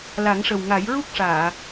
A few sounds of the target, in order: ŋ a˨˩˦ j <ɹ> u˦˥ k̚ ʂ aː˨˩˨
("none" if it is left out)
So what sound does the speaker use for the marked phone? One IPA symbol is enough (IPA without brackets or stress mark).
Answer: ɹ